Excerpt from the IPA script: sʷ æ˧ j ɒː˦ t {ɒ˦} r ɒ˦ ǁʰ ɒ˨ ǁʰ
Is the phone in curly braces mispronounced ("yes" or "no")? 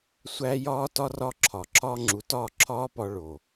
no